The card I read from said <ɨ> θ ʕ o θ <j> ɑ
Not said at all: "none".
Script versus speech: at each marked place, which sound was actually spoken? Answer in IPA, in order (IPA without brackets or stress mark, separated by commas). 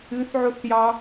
ɨ, j